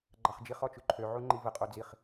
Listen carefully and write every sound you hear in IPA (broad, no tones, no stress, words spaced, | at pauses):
ɡ͡ǃɑχd͡ʒiχ ɔt͡ʃʉǃʰø ʕuŋ͡ǃivə qʼod͡ziχ